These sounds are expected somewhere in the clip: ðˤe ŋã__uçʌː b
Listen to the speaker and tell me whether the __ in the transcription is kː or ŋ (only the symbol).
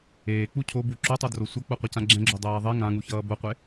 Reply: ŋ